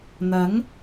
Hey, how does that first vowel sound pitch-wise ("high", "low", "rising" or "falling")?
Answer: rising